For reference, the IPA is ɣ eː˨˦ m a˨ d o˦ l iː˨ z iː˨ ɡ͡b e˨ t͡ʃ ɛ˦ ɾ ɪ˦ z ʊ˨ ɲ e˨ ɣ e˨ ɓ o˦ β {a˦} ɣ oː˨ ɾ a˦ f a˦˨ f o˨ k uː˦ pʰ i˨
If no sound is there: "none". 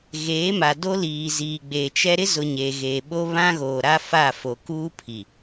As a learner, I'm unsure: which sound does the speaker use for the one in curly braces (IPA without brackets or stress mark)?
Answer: ã˦